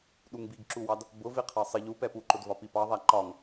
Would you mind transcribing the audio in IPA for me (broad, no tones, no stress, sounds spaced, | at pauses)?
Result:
ɗ u ŋ b i ɡ ǁ u w ɑ d | b ʊ v i qʰ ɑ sˤ ɪ ʎ u p ɛ p u ǃ ʊ d v ɒ p i p ɑ ðˤ æ ǃ ɒ ŋ